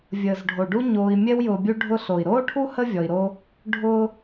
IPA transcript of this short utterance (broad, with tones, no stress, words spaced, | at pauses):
vʲəː˩zɖʱo˩ɖu˦ ɲoː˨i̯mʲɛ˦w jʊː˨bʲu˦ɖʱʊ˦ɬo˩i̯ ɾoː˥ʈʰu˥ hə˥vʲɔ˨i̯ɾo˦ | ɖʱʊ˥